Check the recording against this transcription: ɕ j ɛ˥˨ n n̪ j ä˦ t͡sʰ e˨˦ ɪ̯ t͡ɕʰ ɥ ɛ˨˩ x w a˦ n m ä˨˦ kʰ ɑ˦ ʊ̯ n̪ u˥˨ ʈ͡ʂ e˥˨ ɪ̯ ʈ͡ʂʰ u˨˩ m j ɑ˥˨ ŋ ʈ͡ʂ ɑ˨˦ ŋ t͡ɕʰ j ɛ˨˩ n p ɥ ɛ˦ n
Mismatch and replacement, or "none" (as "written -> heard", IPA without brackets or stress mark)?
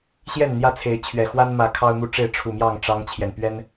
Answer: none